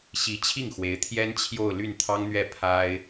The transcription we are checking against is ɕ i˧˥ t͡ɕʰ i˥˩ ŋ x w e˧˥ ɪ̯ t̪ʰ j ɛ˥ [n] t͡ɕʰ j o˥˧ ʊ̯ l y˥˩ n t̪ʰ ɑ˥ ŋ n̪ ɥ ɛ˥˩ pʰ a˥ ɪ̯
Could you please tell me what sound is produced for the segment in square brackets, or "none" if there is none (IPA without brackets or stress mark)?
n